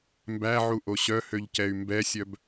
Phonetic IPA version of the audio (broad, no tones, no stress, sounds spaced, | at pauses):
m b æ ʕ u ʔ o ɕ œ h ø ʎ c ɛ y̯ m b ɛ sʲ œ b